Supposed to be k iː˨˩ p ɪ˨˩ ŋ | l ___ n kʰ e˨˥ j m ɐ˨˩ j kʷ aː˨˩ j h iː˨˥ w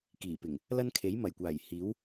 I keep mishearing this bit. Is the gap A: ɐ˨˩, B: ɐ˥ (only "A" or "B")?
B